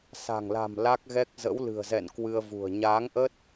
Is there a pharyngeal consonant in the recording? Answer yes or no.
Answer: no